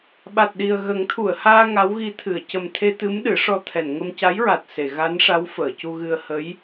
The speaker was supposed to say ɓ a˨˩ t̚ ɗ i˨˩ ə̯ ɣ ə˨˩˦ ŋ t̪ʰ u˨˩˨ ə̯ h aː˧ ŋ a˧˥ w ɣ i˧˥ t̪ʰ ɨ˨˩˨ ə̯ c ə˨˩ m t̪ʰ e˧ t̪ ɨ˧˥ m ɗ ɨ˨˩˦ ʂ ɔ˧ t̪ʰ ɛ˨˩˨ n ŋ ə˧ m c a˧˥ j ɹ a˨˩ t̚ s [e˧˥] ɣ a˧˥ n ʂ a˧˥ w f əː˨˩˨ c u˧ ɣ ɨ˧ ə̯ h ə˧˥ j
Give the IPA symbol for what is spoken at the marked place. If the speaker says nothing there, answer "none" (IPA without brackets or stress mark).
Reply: e˨˩˨